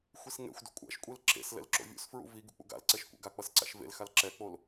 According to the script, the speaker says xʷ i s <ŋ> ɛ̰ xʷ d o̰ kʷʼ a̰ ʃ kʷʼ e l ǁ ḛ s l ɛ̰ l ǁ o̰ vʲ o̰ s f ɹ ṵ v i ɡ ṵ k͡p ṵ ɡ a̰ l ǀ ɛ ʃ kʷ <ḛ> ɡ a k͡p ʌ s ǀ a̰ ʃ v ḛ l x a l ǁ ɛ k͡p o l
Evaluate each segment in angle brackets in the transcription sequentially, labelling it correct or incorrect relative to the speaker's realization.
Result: correct, incorrect

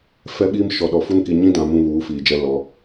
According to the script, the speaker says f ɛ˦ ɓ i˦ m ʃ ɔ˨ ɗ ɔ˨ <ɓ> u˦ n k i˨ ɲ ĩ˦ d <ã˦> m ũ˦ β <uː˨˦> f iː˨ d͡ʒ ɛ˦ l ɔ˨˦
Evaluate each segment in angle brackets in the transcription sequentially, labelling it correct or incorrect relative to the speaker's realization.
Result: incorrect, incorrect, correct

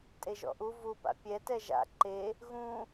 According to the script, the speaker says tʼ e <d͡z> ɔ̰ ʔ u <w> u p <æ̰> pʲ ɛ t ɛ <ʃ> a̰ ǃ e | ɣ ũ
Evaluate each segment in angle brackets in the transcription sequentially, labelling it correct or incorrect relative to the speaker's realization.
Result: incorrect, incorrect, incorrect, incorrect

